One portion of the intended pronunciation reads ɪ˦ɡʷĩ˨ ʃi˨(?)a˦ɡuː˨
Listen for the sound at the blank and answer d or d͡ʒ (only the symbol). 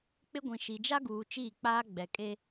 d͡ʒ